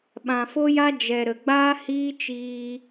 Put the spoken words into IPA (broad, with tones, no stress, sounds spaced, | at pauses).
ɓ ã˨ f o˦ j a˦ d͡ʒ ɛ˨ ɾ ə˨ ɡ͡b aː˦ h iː˦ t͡ʃ iː˧